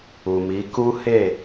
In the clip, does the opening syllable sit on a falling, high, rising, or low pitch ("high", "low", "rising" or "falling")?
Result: low